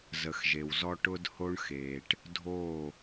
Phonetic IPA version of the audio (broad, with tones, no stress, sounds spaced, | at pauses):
z ə˨ x ʒ e˨ w z ɔ˦ ʈ ʊ˦ d h o˦ ɳ x eː˨ ʈ | dʱ oː˦˨